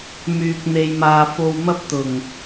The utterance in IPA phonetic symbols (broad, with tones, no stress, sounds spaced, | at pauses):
m yː˨ k̚ n̪ e˧ j m aː˧ f o˧ w m ɐ˥ p̚ t̪ ʊ˨˩ ŋ